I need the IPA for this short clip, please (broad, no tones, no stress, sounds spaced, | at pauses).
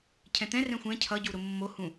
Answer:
cʰ ɛ̃ t̪ ɛ̃ r ɛ̃ xʷ ɛ̃ cʰ ʌ ɟ u ɾ ʊ mː o h ũ